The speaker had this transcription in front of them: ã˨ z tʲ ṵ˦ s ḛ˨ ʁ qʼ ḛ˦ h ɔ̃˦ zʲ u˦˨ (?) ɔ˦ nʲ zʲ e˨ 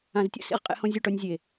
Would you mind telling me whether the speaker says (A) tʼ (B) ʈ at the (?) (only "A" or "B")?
B